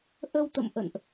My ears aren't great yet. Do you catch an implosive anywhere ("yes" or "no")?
no